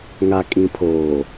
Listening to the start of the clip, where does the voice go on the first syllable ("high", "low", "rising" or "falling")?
low